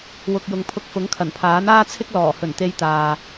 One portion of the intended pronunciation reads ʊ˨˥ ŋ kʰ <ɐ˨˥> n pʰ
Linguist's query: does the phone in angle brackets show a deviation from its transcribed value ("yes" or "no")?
yes